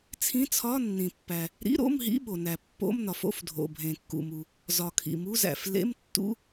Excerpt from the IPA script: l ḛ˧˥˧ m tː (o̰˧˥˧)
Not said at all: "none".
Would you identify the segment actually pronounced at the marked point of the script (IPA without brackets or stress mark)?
ṵ˧˥˧